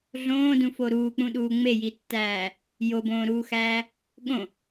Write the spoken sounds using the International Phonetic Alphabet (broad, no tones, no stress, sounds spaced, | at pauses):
ɮ õː d ũ f o ɾ uː k͡p ũ ɗ uː ŋ͡m e j i tː æː | j o b õː ɾ uː x æː | ɠ õ